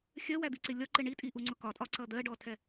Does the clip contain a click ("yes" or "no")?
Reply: yes